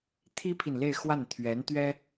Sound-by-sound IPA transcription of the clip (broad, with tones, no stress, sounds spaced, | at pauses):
t̪ʰ i˥ pʰ i˨ n l e˥˧ ɪ̯ x w a˥˩ n t̪ʰ ɥ ɛ˧˥ n t̪ ɥ ɛ˥